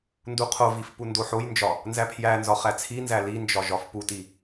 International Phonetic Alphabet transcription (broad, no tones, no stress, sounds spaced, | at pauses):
n d u qʰ o v i f p u n d o ħ o j n d͡ʒ ɒ | n z æ pʰ j æ n z ɒ χ æ t͡sʰ i n z æ l i n d͡ʒ ɒ ʒ ɒ f p u t i